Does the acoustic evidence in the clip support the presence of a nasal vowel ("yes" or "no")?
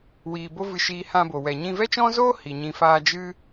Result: yes